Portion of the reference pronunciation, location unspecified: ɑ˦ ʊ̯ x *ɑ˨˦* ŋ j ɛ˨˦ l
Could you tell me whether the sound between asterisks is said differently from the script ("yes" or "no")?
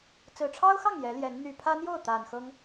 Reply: yes